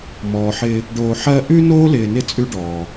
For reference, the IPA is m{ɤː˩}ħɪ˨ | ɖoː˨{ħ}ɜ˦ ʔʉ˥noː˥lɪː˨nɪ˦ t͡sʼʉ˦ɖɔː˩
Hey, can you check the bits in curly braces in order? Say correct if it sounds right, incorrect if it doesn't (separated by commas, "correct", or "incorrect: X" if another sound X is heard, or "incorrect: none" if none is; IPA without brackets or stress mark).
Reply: incorrect: ɔː˩, correct